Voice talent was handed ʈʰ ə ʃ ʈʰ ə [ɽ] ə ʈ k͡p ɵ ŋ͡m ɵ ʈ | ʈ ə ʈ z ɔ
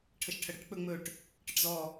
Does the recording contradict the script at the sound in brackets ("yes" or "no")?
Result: no